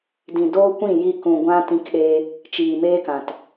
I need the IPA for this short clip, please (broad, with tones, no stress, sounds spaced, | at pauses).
d ĩ˨ d oː˦ kʷ ĩ˦˨ j i˧ k ũ˨ ɡʷ ã˦ t ĩ˧ k ɗ eː˧ | t͡ʃ iː˨ m eː˦ k ã˨ t